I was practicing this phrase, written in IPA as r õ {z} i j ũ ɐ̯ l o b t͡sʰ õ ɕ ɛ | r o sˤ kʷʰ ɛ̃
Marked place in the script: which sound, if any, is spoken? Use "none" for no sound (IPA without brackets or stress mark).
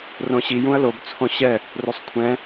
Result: ɕ